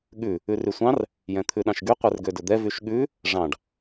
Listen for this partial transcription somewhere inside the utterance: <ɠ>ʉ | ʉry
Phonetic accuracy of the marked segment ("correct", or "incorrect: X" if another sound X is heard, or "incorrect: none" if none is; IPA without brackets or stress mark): correct